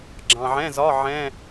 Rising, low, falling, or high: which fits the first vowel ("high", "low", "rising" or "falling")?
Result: low